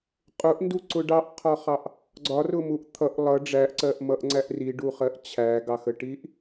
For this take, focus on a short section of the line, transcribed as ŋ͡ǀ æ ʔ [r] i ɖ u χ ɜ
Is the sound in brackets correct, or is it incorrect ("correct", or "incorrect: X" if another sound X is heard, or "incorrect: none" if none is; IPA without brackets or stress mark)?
correct